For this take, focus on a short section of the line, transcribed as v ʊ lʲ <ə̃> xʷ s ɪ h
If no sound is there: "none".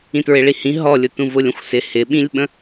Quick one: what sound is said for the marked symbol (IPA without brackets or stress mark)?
ə̃